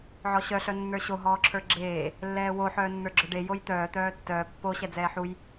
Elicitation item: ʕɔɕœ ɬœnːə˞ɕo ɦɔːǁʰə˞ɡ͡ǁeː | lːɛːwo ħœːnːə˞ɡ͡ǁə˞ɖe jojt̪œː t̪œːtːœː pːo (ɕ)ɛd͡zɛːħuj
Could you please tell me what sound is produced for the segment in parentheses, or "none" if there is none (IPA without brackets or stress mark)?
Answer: ɕ